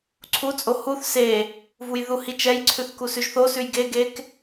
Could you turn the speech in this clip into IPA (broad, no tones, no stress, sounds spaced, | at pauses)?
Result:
ǀʰ u t͡sʼ o h u θ s e | v u j ð u h i t͡ʃ ɛ j ǀʰ ʉ θ k u s ʉ ʒ θ o s ʉ j ɡ e ɡ e k